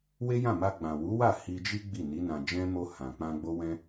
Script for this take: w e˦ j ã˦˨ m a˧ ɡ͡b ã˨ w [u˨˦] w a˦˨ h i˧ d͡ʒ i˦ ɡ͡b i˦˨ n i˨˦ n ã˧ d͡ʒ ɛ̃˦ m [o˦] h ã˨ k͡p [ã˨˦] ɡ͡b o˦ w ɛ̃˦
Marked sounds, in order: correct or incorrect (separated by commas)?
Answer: correct, incorrect, incorrect